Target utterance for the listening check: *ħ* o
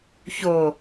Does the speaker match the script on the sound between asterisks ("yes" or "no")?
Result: no